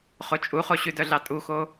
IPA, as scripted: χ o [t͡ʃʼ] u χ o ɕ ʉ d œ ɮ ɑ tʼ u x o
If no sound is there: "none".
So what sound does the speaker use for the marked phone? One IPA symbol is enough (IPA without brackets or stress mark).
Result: t͡ʃʼ